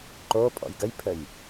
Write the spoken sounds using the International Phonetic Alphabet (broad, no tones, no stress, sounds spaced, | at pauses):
ǃ o pʼ ɔ̰ j ɡ ə j pʰ ə j